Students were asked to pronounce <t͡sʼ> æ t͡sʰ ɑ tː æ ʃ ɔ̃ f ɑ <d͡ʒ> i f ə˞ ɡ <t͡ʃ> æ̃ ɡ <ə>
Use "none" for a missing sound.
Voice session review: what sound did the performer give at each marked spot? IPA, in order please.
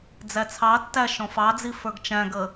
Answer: d͡z, d͡z, t͡ʃ, ə

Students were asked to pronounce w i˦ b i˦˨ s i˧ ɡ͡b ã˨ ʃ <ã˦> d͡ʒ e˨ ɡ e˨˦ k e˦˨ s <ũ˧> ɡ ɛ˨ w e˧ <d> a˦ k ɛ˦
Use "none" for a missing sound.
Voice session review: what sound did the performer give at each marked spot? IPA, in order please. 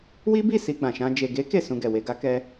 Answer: ã˧, ũ˧, ɡ

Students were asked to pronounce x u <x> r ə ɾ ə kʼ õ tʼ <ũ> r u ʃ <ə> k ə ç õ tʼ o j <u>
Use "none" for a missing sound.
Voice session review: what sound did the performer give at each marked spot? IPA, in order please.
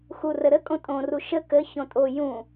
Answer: none, õ, ə, ũ

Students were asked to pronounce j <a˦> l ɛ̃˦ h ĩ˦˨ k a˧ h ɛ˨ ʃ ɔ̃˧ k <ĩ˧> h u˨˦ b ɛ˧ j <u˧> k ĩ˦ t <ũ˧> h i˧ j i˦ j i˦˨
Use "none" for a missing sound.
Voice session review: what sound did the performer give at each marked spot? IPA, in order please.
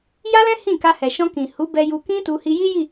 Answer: a˦, ĩ˨, u˧, u˧

